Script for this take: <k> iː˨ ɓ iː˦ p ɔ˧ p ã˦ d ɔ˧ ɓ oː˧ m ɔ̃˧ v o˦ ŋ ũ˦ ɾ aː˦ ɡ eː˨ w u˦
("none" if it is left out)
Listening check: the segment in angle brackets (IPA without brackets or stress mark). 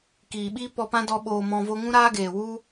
k